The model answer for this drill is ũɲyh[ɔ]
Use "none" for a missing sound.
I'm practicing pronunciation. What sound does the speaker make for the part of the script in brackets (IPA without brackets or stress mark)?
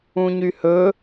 ɵ